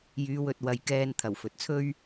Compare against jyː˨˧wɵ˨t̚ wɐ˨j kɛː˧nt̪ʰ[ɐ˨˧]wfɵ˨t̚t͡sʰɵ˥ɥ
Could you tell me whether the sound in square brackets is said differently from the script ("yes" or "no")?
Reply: yes